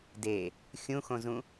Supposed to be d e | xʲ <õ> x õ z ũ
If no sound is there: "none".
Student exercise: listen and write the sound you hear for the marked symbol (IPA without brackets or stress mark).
ũ